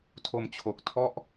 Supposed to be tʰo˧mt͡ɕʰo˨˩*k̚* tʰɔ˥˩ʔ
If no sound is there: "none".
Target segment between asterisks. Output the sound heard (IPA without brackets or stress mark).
k̚